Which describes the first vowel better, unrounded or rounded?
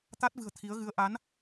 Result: unrounded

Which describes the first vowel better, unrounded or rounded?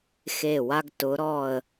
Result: unrounded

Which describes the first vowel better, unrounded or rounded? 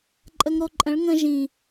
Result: unrounded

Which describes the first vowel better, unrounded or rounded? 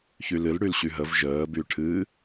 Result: rounded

